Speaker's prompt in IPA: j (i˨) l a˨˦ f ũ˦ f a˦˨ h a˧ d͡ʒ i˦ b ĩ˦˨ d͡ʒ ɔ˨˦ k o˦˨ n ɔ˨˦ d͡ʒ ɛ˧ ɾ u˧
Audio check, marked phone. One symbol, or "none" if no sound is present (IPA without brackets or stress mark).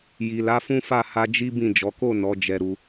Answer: i˨